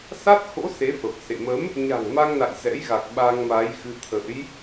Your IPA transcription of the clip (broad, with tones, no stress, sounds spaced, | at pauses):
s a˦˥ t̚ x o̰˧˥ s e˨˦ f ə˨˩ p̚ s ḛ˧˨ m ə˨˦ m | ɲ a̤˨˩ ŋ m a˧ ŋ n a̰˧˨ j z ɛ̰˧˥ j ɣ a˨˩ k̚ ɓ a˧ ŋ m a˨˦ j x ɨ˧ t̪ʰ ə̰˧˥ j